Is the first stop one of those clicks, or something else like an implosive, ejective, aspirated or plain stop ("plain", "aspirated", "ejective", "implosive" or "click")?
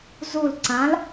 click